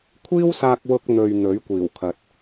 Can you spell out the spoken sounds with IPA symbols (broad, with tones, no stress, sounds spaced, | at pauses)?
kʷʰ iː˥ w s aː˧ k̚ w ʊ˧ k̚ n̪ ɵ˨ ɥ n̪ ɵ˨˥ ɥ kʷ iː˨˩ w kʰ ɐ˨ t̚